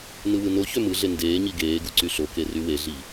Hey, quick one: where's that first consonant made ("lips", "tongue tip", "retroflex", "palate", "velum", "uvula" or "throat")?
tongue tip